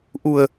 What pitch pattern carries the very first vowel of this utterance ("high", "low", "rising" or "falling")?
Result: low